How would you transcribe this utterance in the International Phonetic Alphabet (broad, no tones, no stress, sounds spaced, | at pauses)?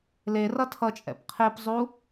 l e r ʌ tʰ ʌ t͡ʃʼ ɛ̰ p qʰ e p zˤ u